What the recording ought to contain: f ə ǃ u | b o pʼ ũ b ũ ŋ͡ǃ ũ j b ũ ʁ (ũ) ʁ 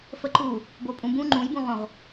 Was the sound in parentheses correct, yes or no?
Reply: no